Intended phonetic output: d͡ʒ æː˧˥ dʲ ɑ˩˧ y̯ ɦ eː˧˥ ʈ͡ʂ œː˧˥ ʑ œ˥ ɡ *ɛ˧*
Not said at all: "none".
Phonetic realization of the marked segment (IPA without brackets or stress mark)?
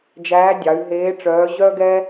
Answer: ɛ˥